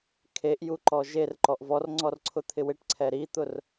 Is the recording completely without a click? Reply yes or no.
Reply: no